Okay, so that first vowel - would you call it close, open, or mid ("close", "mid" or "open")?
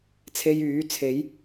mid